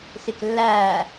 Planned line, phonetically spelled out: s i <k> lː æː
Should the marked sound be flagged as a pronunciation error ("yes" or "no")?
no